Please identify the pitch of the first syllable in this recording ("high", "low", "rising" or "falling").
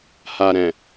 low